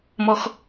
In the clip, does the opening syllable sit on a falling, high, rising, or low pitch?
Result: high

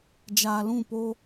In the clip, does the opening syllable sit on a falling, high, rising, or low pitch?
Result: low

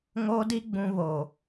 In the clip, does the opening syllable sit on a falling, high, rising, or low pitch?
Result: high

